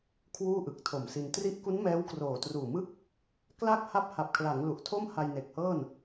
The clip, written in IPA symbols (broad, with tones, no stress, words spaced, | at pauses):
kʰwuː˥˩ʔɯ˨˩k̚tʰo˨˩msi˧n tri˦˥ʔku˦˥n mɛː˦˥wkroː˨˩truː˨˩mɯ˥˩k̚ | kla˥˩k̚ ha˦˥p̚ha˨˩p̚kʰla˩˦ŋ lu˨˩ʔtʰo˥˩mha˧j ne˨˩k̚hɤː˥˩n